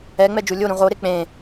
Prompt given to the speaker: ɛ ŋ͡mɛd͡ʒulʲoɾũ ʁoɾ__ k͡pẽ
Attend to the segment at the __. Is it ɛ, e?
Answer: e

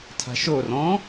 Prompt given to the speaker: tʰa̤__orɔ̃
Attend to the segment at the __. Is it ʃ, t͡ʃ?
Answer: ʃ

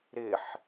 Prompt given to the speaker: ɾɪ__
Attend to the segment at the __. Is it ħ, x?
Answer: ħ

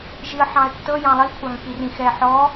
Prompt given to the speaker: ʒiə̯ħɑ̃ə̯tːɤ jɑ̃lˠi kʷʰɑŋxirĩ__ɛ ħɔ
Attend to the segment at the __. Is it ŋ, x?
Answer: x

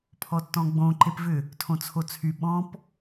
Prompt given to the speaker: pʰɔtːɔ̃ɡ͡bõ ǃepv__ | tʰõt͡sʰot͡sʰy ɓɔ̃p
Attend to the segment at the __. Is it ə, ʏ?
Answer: ʏ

